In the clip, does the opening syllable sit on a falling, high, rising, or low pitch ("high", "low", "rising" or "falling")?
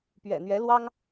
low